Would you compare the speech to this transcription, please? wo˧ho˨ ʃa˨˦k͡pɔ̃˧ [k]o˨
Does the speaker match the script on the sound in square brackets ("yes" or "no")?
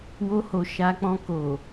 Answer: yes